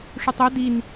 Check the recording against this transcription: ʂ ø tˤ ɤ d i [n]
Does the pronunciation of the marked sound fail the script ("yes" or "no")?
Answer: no